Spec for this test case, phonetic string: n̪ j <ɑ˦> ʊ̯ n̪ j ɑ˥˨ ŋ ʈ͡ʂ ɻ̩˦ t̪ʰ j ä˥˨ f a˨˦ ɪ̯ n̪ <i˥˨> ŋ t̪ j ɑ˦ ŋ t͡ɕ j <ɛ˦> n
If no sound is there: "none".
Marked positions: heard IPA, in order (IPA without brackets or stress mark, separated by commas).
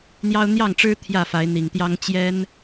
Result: ɑ˦, i˨˩, ɛ˦